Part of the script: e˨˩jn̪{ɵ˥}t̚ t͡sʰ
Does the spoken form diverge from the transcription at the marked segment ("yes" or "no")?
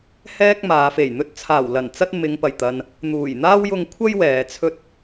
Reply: no